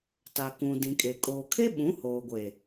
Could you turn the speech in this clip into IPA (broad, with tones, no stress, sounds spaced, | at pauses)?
t a˨ k ũ˨ d ĩ˨ kʼ e˨ kʼ oː˨ kʰ e˦ ɓ ũ˨˦ h oː˨ ɡʷ e˨